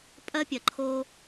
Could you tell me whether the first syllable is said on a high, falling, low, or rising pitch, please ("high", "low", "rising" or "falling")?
high